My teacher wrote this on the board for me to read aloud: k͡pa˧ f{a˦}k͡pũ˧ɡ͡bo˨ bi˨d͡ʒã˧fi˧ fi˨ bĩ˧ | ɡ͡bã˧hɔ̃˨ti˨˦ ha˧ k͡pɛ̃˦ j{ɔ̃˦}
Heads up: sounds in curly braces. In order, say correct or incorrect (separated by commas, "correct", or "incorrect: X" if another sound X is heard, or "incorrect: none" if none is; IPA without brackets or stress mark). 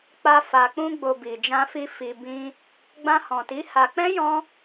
incorrect: a˨, correct